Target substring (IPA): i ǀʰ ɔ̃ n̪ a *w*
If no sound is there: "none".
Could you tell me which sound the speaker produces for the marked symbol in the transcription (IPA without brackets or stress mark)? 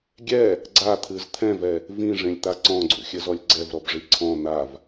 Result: v